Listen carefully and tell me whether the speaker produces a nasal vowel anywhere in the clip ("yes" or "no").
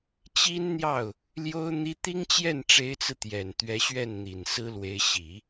no